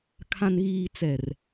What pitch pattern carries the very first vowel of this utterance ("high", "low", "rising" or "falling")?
low